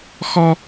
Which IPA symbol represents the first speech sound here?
x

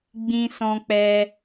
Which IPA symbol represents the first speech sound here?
ɡ͡b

